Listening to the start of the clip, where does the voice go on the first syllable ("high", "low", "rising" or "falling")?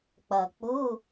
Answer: low